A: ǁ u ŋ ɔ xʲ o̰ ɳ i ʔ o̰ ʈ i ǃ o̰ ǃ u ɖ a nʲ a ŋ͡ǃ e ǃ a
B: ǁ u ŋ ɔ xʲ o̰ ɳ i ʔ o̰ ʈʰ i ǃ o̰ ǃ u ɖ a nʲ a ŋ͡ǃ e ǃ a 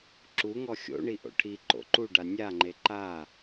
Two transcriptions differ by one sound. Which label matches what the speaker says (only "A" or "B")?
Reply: B